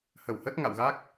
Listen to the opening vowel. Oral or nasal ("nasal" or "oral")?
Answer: oral